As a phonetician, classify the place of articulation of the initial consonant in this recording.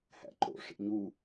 glottal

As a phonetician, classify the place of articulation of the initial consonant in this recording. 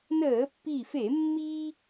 alveolar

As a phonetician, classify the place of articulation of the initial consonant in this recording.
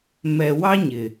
labial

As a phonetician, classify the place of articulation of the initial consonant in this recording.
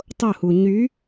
alveolar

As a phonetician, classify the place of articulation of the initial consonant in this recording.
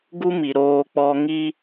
velar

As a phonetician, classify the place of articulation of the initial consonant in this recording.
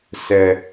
alveolar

